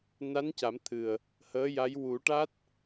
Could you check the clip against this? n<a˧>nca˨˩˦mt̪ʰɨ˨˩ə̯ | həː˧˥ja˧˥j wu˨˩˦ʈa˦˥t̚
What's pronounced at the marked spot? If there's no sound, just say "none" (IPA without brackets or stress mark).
a˧˥